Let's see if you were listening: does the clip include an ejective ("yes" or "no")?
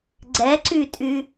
yes